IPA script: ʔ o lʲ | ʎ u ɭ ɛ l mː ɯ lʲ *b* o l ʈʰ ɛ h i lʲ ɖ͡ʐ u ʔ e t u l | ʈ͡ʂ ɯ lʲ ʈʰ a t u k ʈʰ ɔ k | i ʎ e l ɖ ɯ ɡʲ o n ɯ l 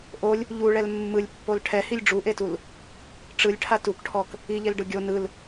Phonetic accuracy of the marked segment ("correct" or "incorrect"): incorrect